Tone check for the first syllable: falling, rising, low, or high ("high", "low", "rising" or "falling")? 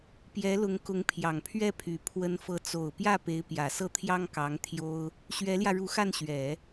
rising